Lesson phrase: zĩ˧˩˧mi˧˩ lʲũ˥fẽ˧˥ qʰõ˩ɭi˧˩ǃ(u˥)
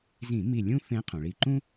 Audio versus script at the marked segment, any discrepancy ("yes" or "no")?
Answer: yes